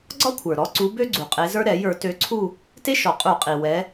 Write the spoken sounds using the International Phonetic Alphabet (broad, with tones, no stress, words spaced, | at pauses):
ɡ͡ǀɒ˥kʷʰə˞˩ɾɔ˨˦ǀu˨˦ bø˥ɡ͡ǀu˩qʼe˨˦zə˞˥ ɾɛ˧˩˧jə˞˧˩˧tø˨˦ǀʰu˥˧ | te˥ʃɔ˩qʼu˧˩˧qʼi˩ wɛ˨˦